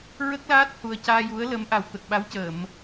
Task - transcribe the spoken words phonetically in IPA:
ɹ ə˦˥ k̚ l aː˦˥ t̚ h u˨˩ ə̯ c aː˧ j u˧˥ ə̯ l ə˧˥ m ʔ a˨˩ w t̪ ə˨˩ k̚ ɓ a˧˥ w c əː˨˩˨ m

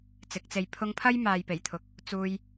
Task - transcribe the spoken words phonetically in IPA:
t͡s ɪ˨˥ k̚ t͡s e˧ j pʰ ʊ˧ ŋ pʰ ɐ˥ j m aː˨ j p e˨˩ j t̪ʰ ʊ˨ k̚ | t͡s uː˧ j

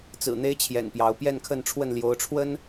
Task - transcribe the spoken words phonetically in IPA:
t͡s ɹ̩˨˩ n̪ e˦ ɪ̯ t͡ɕʰ j ɛ̰˨˩ n p j ɑ˨˦ ʊ̯ p j ɛ˥˨ n kʰ ə˥˨ n ʈ͡ʂʰ w ə˥˨ n l j o˨˦ ʊ̯ ʈ͡ʂʰ w ə˦ n

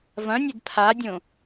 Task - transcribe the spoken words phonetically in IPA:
v ɐ̃ nʲ e d pʰ a dʲ õ

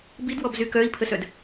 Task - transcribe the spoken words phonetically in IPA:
b i d w ɔ b z y k œ i̯ pʰ ə s œ d

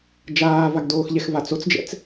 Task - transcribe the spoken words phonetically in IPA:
d͡ʒ aː v a ɡ d oː x ʎ ɛ x v a t͡s o t͡s d͡ʒ ɛ̰ t͡s

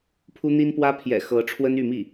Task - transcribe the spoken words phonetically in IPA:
pʰ u˥ n̪ i˥ n p w ä˥ pʰ j ɛ̰˨˩ x ɤ˧˥ ʈ͡ʂʰ w ə˥ n y˥˧ m i˥˩

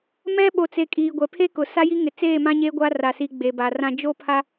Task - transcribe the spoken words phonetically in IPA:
m ɛ˦ ɓ o˨ t͡s e˨ kʼ iː˨ ɡʷ ɛ˨ pʰ e˦ k ʊ˨ s a˦ j i˦ ŋ ɪ˨ t͡s eː˦˨ m ã˦ ɲ eː˦ ɡʷ a˦ r a˨ s i˨ ɡ͡b e˨ b a˨ r ã˦ d͡ʒ o˦ pʰ a˦

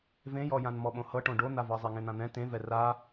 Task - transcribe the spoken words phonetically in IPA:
v ẽ j ɔ j ã n m ɔ ɓ õ h ɤ ʈ õ ɖ o n̪ a v ɤ zˤ e ŋ ẽ n̪ ã n̪ ɛ̃ t ẽ v ɛ r a

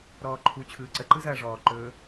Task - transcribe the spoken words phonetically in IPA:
ɾ ɔː ǃʰ u t͡ɕʰ ɯː ǀ ə ǃ ɯ z ɐː ʐ ɔː ǃ ɵː

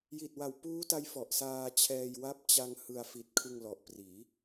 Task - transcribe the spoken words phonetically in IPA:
j i˨˩ t̚ w a˨˩ w p uː˦˥ t a˦˥ j f ɔ˨˩ ʔ s aː˧ t͡ɕʰ ɛː˧ j w a˦˥ p̚ t͡ɕ a˧ ŋ h ɯ˧ a̯ f i˨˩ t̚ kʰ ɯ˧ ŋ l ɔ˨˩ ʔ p r iː˩˦

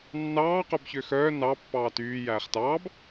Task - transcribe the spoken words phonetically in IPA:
nː ɑː q œ b ç ø x œː n ɑ pː ɑː t yː j æː χ t ɑː b

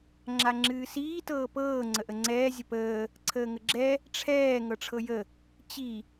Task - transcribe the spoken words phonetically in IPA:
ŋ͡ǁ a ŋ͡ǁ ɨː s iː t ɤː p ɤː ŋ͡ǀ ə ʔ ə ŋ͡ǀ ɛː zʲ ə p əː | ǀʰ əː ŋ ə ɡ͡ǁ ɛ | ʈ͡ʂʰ ɛː ŋ ɤ ʈ͡ʂʰ ɤ j ə | t͡ɕ i

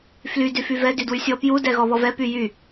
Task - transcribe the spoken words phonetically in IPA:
f l y d y f y v ɛ d y d w y sʲ ɔ p j u d ɛ ɣ ɔ β ɔ v ɛ p y j y

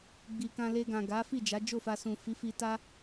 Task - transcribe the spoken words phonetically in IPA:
ɡ͡b i˨ k ã˧ l e˧ ɡ ã˨ ɡ a˨˦ f i˦˨ d͡ʒ a˨˦ d͡ʒ o˦˨ f a˧ s ũ˨ f i˨˦ f i˧ t a˦

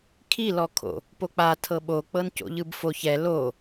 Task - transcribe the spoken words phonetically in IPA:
kʰ i l ɔ kʰ o̰ | p o k͡p a tʰ ɤ ɓ o k͡p ɤ n c o̰ ʎ ɯ b f o ç ɛ l o

